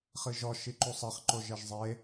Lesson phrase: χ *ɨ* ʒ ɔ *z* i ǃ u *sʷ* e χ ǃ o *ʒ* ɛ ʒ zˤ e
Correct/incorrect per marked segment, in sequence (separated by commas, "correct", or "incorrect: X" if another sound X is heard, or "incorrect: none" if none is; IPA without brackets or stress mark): correct, incorrect: ʃ, incorrect: sˤ, correct